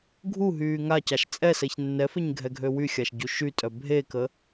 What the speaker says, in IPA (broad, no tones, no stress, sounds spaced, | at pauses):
ɡʱ u ɦ yː ŋ a c a ʃ t͡sʼ ɛ s ɛ ç nː ɛ f e ɲ ɡʱ ɛ ɡʱ ø w y xʲ a ʃ ɟ u ʃ y tʼ œ bʱ e k ə